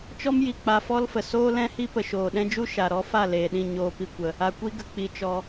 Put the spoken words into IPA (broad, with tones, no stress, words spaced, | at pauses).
t͡ʃɔ˦mji˨ k͡pa˧fɔ˦lfə˨ soː˦lɛ̃˦hi˦ pə˨ʃoː˨ɗɛ̃˦d͡ʒu˦ ʃa˧ ɾɔ˦fa˦˨ leː˨ɗĩ˦˨ ɲoː˧pi˧ kʷə˧ | a˧kʷi˦ɡə˧k͡pi˧ t͡ʃɔ˧